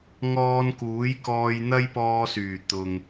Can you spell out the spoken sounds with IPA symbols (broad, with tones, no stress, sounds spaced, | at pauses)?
ŋ ɔː˧ n k uː˨˥ j k ɔː˧ j n̪ ɐ˥ j p ɔː˧ s yː˨˩ t̪ ʊ˨ ŋ